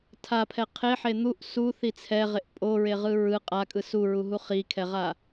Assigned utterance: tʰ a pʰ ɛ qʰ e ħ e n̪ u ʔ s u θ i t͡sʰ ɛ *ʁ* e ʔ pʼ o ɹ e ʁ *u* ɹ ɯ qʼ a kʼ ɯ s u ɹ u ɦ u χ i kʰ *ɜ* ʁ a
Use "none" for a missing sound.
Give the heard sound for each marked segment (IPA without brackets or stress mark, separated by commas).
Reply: ʁ, ɯ, ɛ